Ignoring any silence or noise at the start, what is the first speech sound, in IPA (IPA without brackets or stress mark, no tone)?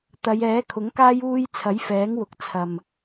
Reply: t̪